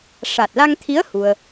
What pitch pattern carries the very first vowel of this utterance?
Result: low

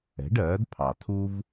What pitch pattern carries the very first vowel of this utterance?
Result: rising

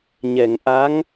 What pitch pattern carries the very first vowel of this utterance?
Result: low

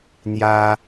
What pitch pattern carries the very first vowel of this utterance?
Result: high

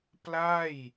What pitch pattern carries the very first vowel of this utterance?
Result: falling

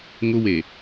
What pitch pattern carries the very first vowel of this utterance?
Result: high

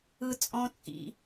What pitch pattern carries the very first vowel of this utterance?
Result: high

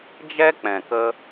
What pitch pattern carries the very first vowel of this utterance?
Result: high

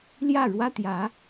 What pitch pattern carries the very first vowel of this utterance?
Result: falling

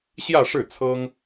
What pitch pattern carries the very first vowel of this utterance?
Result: falling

